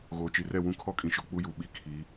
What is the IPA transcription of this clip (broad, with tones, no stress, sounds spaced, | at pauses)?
ɣ oː˨ t͡ʃ i˨ r ɛ˦˨ w ũ˦ kʰ ɔ˦ kʼ ĩ˨ ʃ ɔ˨ k͡p u˦ j u˨ ɓ i˦ kʰ i˨˦